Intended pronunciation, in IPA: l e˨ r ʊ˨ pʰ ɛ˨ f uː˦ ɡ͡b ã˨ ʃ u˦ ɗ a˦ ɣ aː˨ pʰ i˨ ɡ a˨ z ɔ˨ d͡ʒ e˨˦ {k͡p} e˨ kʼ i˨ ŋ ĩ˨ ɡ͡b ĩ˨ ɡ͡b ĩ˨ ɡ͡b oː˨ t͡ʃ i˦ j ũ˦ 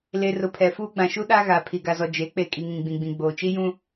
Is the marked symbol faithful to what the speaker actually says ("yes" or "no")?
yes